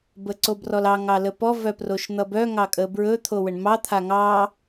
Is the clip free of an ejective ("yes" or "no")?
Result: no